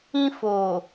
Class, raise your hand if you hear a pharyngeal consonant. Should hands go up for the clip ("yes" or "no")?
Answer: no